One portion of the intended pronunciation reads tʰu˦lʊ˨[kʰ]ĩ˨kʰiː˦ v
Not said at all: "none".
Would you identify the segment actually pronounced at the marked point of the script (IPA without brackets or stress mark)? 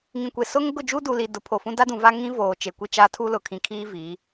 kʰ